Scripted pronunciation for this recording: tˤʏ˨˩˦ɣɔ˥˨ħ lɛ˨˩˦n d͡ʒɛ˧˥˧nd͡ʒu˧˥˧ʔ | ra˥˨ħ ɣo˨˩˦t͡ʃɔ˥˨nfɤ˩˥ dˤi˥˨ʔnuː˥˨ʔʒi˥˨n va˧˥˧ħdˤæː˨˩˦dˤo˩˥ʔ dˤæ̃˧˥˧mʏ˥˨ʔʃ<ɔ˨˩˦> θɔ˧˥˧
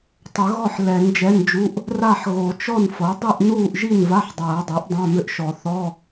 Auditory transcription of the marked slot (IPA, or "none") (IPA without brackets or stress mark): ɔ˨˩˦